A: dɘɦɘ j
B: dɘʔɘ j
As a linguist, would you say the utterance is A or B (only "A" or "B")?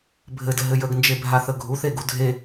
A